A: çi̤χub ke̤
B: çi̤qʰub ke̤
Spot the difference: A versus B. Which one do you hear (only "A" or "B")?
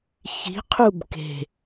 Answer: B